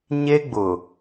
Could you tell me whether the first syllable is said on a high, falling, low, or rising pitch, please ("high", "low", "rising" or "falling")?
high